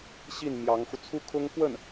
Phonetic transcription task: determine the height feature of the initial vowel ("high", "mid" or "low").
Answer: high